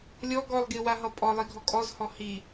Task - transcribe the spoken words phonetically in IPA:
lʲɔ ɡɔlˠɡi waɦʌpʼɔ lˠiɡʱɔkʼɔzhɔ hi

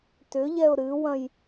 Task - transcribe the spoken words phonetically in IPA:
tʏʎɛʊ̯ ɾɨwɐ̃j

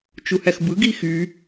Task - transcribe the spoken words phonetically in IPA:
t͡ʃuhæxbɯ ɡixy

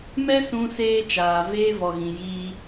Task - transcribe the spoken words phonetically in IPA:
mɛ˦sũ˧seː˧ t͡ʃaː˨veː˧ vɔ˨ɣĩ˨ jiː˧

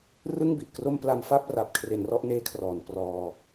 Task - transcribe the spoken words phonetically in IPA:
rɯ˥˩ŋ bi˨˩ʔkro˥˩mpla˧m fa˥˩p̚ ra˨˩p̚kʰre˩˦n rɔ˥˩ʔneː˦˥kʰrɔː˩˦n prɔː˧

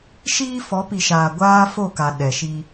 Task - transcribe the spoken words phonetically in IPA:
ʃiː˦fɔ˨˦pi˨ʃaː˨ ɡʷaː˦fo˦˨ka˨ ɗɛ˨ʃi˦

